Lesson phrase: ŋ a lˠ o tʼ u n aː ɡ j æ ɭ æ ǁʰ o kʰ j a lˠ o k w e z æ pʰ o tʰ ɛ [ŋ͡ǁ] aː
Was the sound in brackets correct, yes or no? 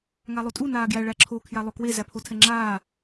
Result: yes